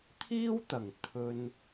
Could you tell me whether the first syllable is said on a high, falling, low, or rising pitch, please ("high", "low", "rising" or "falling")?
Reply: high